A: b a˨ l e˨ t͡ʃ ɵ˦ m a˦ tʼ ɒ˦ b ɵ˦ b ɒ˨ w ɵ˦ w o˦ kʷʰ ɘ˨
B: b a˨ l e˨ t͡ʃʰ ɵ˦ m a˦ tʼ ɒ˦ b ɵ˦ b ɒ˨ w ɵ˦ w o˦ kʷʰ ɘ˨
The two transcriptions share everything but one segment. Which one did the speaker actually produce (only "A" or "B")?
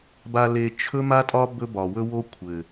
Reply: B